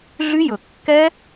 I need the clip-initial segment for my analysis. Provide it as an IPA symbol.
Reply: ɮ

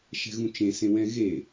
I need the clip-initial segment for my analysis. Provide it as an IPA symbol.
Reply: ʃ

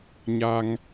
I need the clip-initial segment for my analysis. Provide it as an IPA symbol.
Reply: ɲ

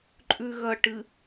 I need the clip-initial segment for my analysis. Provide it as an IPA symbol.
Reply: ǃʼ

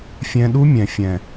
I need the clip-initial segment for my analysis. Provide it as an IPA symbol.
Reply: fʲ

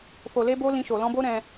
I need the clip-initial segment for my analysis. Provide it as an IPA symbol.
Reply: f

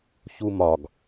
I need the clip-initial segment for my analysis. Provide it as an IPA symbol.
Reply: ç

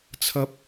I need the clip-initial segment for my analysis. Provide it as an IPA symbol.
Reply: t͡sʰ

